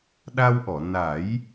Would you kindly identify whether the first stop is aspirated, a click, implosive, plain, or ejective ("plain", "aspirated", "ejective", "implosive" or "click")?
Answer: implosive